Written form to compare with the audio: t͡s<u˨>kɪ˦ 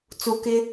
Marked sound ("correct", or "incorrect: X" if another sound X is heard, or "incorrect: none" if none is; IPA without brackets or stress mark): correct